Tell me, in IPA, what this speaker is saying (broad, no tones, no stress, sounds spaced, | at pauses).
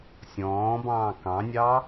sʲ ɔ̃ː b ɑ̃ː k ɑ̃ nʲ ɑ